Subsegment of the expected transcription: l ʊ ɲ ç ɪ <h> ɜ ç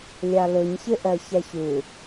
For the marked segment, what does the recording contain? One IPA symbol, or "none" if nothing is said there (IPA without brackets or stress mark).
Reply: ʔ